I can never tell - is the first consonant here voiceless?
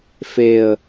yes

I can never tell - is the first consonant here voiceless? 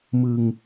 no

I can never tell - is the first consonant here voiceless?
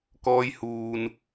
yes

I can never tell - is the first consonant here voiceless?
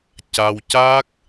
yes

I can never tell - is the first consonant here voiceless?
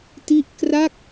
yes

